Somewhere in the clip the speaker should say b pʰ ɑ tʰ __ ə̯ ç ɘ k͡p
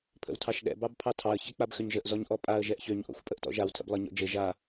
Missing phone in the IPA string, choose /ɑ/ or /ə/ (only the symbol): ɑ